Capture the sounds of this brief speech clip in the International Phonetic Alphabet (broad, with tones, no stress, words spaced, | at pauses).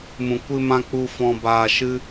mũ˨kʷɨ˧mã˧ k͡pu˧fɔ̃˧ baː˧ʃɨ˦